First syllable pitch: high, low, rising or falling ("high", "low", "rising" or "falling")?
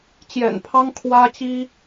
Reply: low